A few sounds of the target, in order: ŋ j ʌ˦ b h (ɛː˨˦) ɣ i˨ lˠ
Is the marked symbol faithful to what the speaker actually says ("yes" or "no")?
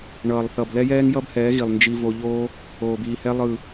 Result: yes